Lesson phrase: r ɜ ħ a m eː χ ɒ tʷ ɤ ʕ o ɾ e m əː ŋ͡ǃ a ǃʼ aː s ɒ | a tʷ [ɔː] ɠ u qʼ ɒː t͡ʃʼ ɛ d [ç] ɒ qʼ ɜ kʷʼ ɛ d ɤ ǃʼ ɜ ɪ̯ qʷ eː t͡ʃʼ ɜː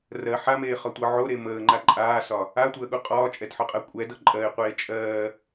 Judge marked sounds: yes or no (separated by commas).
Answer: no, no